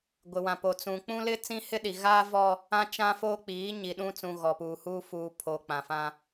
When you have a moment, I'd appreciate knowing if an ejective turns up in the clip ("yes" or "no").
no